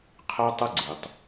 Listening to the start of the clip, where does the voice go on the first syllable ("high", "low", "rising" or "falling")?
high